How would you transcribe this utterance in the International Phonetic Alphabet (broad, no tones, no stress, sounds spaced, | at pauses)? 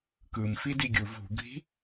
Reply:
k ɯ m f i d i ɡʲ u v ṳ ɡʱ i̤